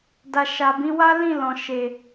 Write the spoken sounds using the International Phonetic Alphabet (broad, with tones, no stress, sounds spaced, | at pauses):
d a˨ ʃ a˨ b ĩ˨˦ w a˦ l ĩ˦˨ l ɔ̃˨ ʃ e˨